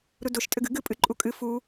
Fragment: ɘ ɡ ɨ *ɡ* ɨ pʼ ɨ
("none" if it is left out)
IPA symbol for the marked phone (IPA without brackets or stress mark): ɡ